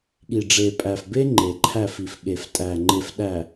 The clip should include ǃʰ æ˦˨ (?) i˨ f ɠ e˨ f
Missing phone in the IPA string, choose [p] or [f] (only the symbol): f